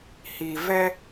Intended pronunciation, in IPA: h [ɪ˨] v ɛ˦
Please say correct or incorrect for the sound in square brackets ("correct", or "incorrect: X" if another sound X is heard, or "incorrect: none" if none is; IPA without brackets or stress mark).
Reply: incorrect: i˨